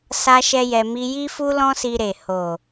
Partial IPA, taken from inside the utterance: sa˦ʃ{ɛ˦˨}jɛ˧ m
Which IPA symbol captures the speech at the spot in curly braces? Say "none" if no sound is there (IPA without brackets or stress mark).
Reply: ɛ˦